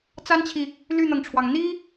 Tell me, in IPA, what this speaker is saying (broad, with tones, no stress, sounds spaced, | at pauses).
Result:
t͡s a˥ n t͡ɕʰ i˨ | l y˥˩ n̪ ɤ˩ ŋ ʈ͡ʂʰ w ɑ˩ ŋ n̪ i˥